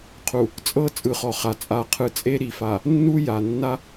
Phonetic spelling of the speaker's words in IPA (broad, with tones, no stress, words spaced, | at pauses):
qʰu˨ | t͡sʼɤ˦ t͡sʼɯ˨χɔ˨χa˨ t͡sʼa˨qʰɯ˨t͡sʼe˦ ɾi˨fa˨ | nːu˦ja˨ nːa˦